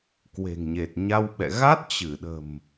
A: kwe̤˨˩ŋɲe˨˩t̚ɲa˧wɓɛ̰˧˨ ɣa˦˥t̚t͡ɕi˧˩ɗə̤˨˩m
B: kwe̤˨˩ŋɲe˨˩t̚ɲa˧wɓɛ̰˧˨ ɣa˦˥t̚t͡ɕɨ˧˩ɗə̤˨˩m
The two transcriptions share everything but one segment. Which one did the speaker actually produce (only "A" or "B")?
B